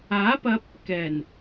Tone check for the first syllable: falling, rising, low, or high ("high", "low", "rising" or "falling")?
rising